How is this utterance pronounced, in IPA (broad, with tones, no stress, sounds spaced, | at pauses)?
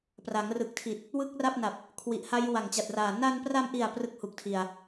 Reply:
p r a˩˦ ŋ r ɯ˨˩ k̚ tʰ i˨˩ t̚ | w ɯ˥˩ k̚ r a˥˩ p̚ n a˨˩ p̚ | kʰ w i˨˩ ʔ h a˦˥ j w a˨˩ ŋ t͡ɕ a˨˩ t̚ r aː˨˩ n a˧ n p r a˧ m ʔ i˨˩ a̯ p r ɯ˥˩ k̚ h u˨˩ k̚ tʰ i˨˩ a̯